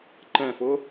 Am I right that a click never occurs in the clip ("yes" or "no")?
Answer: no